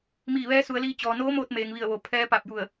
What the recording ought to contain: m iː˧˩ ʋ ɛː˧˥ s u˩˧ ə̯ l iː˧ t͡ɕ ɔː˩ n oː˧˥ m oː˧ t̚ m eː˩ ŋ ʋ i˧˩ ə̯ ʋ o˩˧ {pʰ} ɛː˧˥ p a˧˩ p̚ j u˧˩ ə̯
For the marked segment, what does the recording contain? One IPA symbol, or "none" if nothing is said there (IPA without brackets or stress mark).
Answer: pʰ